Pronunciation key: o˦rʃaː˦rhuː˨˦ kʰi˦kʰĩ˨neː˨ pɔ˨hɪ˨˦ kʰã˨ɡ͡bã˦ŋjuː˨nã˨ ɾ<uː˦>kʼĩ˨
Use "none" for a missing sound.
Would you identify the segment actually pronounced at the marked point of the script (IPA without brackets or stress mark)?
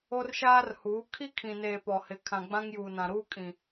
uː˦